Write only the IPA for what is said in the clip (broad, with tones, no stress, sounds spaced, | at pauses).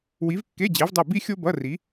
w i˨˥ v kː e˧˥˧ d͡ʑ e˨˥ v dˤ ɛ˦˨ b i˥ xʲ o˥ b ʌ˧˥˧ r i˨˥